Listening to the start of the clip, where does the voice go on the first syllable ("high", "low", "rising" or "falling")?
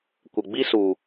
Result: low